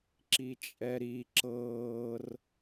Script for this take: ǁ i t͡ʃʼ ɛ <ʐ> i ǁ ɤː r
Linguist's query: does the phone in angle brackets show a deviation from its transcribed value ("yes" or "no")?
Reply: yes